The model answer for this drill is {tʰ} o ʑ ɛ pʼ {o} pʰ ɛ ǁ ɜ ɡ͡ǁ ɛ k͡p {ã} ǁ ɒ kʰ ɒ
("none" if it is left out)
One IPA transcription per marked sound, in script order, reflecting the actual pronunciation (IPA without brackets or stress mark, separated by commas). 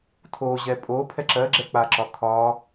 tʰ, o, a